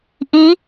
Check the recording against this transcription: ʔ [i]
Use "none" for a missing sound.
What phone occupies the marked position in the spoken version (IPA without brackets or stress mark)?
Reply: i